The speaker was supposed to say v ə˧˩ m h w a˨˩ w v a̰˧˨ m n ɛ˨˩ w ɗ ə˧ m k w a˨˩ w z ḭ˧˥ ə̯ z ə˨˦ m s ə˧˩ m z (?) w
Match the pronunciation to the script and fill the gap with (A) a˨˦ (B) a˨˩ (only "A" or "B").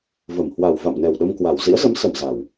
B